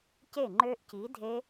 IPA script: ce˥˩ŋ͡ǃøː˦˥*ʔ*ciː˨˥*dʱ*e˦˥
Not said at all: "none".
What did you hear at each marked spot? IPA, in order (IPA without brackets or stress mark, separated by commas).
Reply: ʔ, dʱ